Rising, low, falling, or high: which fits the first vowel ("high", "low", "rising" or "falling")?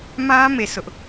high